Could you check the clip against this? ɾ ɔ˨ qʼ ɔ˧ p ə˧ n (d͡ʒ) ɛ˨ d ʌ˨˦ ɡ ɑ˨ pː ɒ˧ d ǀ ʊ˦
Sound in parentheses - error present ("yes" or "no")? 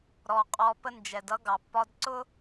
no